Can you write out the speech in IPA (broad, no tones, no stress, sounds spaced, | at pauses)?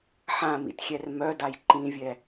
ħ ã m ḭ t xʲ ɛ r m œ d a j ǃ ĩ vʲ ɛ